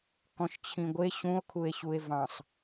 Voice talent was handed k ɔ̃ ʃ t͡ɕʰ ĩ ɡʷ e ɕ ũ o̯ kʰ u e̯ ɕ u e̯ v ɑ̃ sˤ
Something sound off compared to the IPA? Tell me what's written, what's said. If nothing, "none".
none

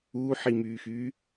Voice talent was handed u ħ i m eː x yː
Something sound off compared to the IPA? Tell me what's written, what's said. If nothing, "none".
eː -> yː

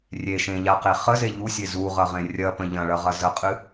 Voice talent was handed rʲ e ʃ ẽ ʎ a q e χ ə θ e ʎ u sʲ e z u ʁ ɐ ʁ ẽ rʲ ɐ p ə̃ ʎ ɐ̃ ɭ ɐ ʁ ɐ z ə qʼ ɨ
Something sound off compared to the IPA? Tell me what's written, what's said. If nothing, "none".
θ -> z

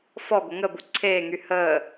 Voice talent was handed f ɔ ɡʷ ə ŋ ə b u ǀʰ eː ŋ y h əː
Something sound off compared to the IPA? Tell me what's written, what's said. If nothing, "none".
none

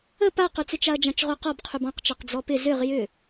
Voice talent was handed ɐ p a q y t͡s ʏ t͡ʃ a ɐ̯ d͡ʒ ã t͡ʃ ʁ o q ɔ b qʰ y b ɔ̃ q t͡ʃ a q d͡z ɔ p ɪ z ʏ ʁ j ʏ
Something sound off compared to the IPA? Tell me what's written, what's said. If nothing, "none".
ɐ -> ə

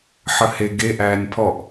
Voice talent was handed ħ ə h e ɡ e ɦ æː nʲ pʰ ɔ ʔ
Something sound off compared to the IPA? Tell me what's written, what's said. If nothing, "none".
ɦ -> ʔ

